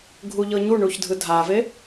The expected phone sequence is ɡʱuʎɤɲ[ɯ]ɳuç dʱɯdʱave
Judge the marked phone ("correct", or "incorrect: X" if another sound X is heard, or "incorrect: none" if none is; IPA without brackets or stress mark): incorrect: u